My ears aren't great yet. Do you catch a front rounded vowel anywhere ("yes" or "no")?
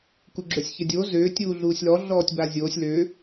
yes